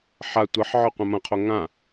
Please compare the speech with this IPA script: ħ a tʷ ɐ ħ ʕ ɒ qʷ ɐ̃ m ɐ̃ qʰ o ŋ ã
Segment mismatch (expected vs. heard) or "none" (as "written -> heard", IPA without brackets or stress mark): none